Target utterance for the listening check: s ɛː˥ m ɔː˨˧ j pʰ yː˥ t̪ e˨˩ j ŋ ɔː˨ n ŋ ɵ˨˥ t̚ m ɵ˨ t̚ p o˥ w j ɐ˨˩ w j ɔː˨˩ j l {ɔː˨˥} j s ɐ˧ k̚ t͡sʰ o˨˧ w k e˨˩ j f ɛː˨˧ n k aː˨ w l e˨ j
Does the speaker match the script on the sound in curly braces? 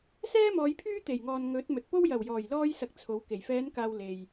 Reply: no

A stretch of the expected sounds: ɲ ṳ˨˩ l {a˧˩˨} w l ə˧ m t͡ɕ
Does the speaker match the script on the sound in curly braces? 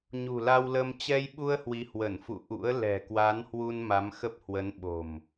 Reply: no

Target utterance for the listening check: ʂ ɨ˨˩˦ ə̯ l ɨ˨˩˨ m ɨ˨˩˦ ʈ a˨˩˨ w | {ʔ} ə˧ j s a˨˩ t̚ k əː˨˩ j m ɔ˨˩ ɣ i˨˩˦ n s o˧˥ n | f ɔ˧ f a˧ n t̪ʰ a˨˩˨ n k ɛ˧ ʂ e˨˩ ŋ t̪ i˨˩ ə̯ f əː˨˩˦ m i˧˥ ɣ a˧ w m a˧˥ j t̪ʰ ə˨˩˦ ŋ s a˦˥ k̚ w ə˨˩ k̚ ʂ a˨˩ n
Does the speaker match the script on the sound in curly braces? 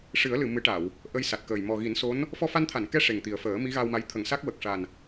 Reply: yes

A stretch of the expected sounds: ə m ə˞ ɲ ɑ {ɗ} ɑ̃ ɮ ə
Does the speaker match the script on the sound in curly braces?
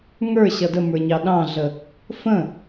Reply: yes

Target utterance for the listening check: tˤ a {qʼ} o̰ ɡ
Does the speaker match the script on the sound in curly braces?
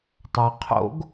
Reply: no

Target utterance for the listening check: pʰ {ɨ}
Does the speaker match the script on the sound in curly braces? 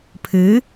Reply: yes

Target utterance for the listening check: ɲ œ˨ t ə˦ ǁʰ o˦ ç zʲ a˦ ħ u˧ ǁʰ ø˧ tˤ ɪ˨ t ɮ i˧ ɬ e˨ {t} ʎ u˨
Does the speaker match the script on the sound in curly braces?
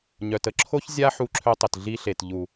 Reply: yes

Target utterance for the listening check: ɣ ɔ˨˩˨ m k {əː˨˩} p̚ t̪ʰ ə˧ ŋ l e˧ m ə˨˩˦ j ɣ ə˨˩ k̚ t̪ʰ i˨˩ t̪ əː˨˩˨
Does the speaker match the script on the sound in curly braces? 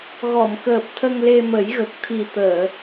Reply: yes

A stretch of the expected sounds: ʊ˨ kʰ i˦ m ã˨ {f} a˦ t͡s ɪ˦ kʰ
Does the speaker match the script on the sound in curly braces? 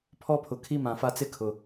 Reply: yes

